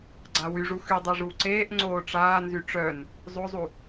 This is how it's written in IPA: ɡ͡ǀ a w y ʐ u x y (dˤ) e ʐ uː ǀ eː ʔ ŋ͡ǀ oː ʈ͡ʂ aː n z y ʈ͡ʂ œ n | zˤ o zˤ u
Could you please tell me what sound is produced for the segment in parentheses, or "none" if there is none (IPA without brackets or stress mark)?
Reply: dˤ